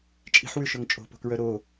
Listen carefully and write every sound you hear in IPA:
t͡ʃʼ i̤ ħ w ʉ ʃ ɵ ŋ t͡ʃʼ o̤ p o̤ k ɹ œ ɾ o

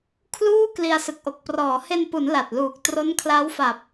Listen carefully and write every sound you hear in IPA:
kʰ l uː˥˩ k l i˧ a̯ s ɯ˨˩ k̚ ʔ o˨˩ k̚ p r ɔː˩˦ h e˧ n p u˩˦ n l a˨˩ t̚ l uː˨˩ k̚ t r o˦˥ n kʰ l a˦˥ w f a˨˩ p̚

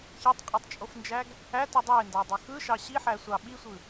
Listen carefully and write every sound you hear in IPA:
ç e tˤ qʼ e tˤ t͡ʃʼ o f n d͡ʒ æ ɡ | æ t ɯ dˤ o e̯ n d ɑ dˤ e x ɯ ʃ ɑ ɕ i ħ æ sʷ ɑ ɓ i sʷ ɯ

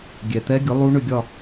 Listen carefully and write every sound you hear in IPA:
ɡʲ ɛ˨˩ t̪ ɛ˦˥ ɡʲ ʊ˨˥ lˠ u˦˥ ɳ ʏ˥˧ ɡʲ ɒ˥˧

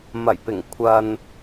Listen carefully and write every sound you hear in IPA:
m ɐ˨˩ j p ɪ˨˩ ŋ kʷʰ ɐ˨ n

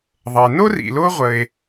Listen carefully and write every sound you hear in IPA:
ðˤ ə˩ e̯ n o˥ r ḭ˩ l o˦ ʁʷ ə˩ e̯

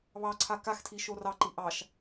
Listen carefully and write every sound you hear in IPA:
β ɑ ǀʰ a k a x tʰ i ʃ o r ɑ ǃ i ʔ ɑ ʃ

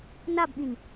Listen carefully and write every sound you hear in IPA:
n a b ɓ ĩ n

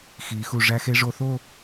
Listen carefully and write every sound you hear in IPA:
x i˩˧ x u˧˩ ʐ æ˧ x e˧ ʐ o˧ θ o˥˧

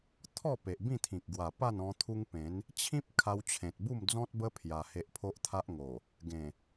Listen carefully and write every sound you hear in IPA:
t̪ʰ ɔ˥˧ p e˨ ʔ b ĩ˥˧ t̪ʰ ĩ˨ k̚ ɡ w a˨˩ p a˥˧ n ɔ̃˧ t̪ʰ u˦ ŋ p ẽ˨˦ n | t͡ɕʰ ĩ˦ p̚ kʰ a˧ w t͡ɕʰ ẽ˨ t̚ b u˥˧ m d͡z ɔ̃˦ t̚ b ə˦ pʰ j a˧ h e˦ ʔ pʰ o˦ ʔ t̪ʰ a˦ ʔ ŋ o˨˩ | ɡ ẽ˨˩

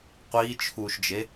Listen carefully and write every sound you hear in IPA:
qʷ iː t͡ʃʰ uː ʃ d͡ʒ e

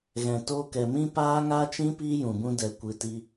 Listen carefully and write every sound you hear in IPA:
ɣ ɛ̃˨ t oː˧ k ɛ˨ m ĩ˦ p aː˦ ŋ a˦ t͡ʃ ĩ˦ p iː˦ j ũ˨ b ũ˧ d ɛ˨ kʷ ɨ˨ t i˧

